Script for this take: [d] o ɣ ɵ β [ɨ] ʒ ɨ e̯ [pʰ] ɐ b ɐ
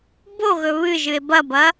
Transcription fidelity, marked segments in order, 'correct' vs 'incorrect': incorrect, correct, incorrect

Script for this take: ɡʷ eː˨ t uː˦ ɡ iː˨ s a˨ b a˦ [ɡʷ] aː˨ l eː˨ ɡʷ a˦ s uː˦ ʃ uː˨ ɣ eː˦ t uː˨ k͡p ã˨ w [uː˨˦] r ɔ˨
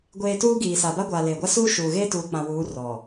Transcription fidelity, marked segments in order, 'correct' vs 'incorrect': correct, correct

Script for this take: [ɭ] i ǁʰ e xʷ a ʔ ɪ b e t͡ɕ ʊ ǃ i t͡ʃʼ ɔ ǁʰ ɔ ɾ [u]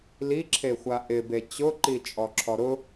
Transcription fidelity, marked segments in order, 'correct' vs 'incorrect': incorrect, incorrect

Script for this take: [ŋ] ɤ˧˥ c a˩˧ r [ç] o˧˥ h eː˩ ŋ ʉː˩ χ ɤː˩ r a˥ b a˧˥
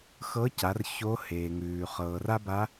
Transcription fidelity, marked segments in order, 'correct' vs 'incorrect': incorrect, correct

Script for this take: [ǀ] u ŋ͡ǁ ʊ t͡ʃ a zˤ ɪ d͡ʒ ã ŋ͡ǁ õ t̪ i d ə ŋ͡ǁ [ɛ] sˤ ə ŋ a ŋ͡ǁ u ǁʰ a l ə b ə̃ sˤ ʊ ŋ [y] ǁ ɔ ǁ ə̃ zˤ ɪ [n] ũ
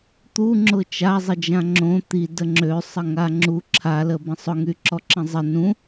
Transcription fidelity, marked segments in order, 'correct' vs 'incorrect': incorrect, incorrect, correct, correct

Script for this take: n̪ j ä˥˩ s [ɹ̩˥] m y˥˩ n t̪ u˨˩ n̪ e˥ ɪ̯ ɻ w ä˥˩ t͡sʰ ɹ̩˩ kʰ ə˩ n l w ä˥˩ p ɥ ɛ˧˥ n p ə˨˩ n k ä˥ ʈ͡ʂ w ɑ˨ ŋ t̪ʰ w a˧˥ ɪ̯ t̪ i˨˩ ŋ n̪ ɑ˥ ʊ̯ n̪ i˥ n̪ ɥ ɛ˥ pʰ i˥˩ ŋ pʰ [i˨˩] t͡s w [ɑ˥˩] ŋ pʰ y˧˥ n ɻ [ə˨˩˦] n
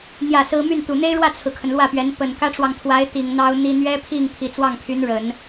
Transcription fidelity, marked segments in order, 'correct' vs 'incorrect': correct, correct, correct, correct

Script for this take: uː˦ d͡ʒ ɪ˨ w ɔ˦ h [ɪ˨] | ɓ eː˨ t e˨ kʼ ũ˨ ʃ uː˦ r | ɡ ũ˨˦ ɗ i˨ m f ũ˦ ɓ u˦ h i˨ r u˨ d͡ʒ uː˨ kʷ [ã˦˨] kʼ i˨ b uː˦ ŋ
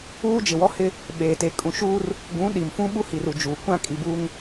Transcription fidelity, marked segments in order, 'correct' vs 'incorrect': incorrect, correct

